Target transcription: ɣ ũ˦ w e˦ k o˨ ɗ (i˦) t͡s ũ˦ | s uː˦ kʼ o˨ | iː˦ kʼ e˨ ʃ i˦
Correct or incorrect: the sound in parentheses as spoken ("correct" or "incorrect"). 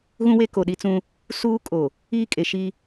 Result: correct